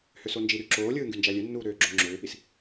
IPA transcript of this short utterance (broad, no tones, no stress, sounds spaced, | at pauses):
h ø s o n d͡ʒ i ɾ y ǁ oː lʲ ɯː ŋ ɡ y n d͡ʒ æ lʲ ø nː uː ɾ øː ɡ͡ǁ o ŋ͡ǁ øː p i s